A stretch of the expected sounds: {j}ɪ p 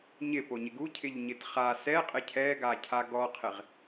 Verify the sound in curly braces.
incorrect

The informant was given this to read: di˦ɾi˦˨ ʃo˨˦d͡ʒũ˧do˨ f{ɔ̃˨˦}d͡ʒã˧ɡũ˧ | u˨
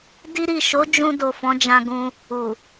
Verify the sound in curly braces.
correct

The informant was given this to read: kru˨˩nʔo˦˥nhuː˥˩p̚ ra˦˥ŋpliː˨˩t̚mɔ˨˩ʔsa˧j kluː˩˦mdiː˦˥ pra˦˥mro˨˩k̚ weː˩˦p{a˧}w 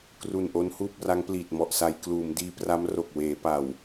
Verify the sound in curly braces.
incorrect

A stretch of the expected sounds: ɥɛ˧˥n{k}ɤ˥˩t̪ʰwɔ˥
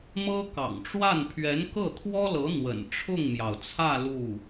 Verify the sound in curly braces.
correct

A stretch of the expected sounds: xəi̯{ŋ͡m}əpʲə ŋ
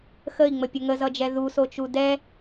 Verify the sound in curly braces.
correct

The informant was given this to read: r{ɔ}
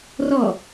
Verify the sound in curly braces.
correct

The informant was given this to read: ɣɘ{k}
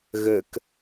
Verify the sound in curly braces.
correct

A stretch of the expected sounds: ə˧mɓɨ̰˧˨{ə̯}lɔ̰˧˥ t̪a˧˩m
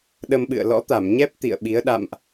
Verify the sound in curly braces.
correct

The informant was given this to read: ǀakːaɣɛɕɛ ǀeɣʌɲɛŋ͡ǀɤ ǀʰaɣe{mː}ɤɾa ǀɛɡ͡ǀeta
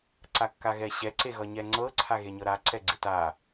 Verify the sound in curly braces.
incorrect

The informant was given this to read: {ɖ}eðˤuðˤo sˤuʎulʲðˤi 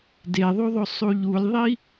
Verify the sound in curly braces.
incorrect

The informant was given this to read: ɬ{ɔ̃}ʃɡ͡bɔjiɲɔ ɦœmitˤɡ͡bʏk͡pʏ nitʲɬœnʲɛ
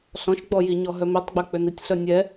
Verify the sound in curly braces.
correct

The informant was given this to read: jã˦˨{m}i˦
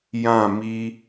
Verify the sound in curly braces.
correct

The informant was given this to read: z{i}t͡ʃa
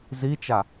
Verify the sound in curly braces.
correct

